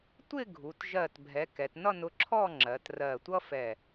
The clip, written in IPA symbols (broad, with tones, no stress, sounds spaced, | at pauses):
tʷ ɪ˥˧ ɡʱ u˩˧ t ʒ ɜ˧˩ t bʱ ɛ˩˧ k ɛ˩˧ t n ʌ˥˧ n ʊ˧ ǁʰ ɔ˥˧ ŋ͡ǁ ɜ˩˧ t r ɜ˧˩ tʷ ʌ˥ f ɛ˧˩